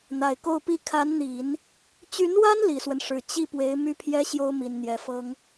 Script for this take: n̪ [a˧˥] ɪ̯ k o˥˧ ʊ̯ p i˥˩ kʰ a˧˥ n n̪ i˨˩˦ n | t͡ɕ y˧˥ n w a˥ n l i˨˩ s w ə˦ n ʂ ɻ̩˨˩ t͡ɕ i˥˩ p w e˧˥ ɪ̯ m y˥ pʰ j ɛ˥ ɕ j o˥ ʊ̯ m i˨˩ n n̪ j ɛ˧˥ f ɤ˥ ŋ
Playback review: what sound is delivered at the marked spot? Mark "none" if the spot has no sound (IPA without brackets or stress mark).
a˨˩